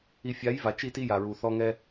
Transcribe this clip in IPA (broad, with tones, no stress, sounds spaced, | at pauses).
i˨ fʲ a˨˦ j v a˨ t͡ʃ i˦ t i˦ j a˨ ɹ u˨ θ ɔ˦ ŋ ɛ˦